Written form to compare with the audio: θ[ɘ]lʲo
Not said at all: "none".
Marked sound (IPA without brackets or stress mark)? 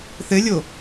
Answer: ɘ